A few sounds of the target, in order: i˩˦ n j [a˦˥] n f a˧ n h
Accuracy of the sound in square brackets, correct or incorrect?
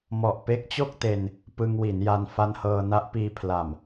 incorrect